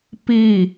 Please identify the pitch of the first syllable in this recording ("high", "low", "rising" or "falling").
falling